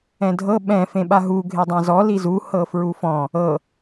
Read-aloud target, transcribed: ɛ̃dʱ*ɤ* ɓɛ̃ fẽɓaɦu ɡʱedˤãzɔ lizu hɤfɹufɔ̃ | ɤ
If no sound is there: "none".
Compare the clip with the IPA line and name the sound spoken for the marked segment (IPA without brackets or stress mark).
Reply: ɤ